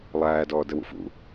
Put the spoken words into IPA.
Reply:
lˠ æː d ɔː d ə w ṵ f ṵ

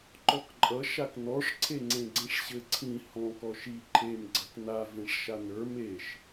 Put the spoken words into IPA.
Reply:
ǃ ɔ k ǃʼ ʌ ʃ a k n ɔ ʂ ǀʰ e ŋ͡ǀ ẽ ɡ͡ǀ ẽ ʂ ɕ ɘ ǀʰ ĩ h ɔ̃ k ɔ ʃ i ǃʰ e m ɡ͡ǀ ʌ k n a v ẽ ʂ ʃ a n ə˞ m e ʃ

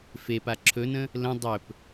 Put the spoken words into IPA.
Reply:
f e p a ǁʰ ɵ n ə̃ | l ə̃ dˤ ɵ p

